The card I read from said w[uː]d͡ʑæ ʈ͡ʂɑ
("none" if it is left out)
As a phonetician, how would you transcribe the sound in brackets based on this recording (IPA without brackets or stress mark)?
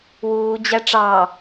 uː